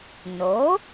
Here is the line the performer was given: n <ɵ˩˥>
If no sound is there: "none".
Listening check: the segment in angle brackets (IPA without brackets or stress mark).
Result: o˩˥